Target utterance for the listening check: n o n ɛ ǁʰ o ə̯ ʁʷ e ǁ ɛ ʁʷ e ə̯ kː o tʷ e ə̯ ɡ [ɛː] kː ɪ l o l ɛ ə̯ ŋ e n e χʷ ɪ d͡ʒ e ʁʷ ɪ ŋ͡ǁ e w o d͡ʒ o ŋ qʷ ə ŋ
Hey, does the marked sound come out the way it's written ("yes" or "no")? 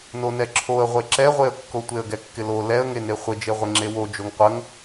no